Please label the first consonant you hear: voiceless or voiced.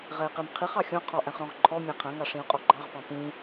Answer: voiced